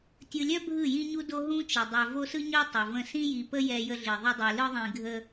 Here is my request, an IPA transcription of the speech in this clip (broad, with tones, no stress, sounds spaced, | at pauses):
tʲ ɯ˨ lʲ œ˦ bʱ ɯ˦˨ j ĩ˦ ɲ u˦ d o˦ ɦ ũ˦ t͡ʃ ə˨ dˤ œ˨ v o˦ s ɯ˦ ɲ œ˦ tˤ ɯ˨ v ə̃˦˨ s ĩ˦ j i˨ p ə˦ j ɛ˦ j ə˦ ɮ i˨ ðˤ ə˦ dˤ i˨ l ɯ˦ ðˤ ĩ˨ ɡʱ ə˦